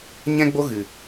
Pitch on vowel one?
high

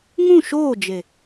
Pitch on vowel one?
falling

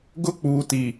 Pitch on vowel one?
high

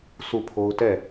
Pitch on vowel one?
falling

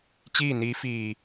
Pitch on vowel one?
falling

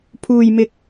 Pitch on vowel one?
low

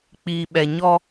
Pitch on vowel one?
low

